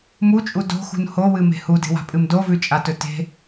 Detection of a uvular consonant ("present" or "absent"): absent